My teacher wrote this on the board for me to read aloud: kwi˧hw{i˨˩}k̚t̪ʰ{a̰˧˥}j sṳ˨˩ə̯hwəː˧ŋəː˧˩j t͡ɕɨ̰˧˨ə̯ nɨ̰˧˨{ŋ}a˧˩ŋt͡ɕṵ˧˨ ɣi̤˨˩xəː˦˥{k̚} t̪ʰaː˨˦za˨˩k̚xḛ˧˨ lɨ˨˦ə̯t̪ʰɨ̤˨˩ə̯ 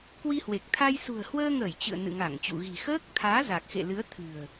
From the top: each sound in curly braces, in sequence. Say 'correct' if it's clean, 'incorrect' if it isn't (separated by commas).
incorrect, incorrect, correct, correct